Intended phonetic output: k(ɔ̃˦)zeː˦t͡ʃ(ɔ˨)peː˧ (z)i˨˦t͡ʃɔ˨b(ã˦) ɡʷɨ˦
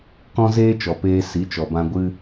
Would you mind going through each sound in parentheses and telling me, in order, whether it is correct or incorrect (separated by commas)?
correct, correct, incorrect, incorrect